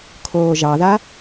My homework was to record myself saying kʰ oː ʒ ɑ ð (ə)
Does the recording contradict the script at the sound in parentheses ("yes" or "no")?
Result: yes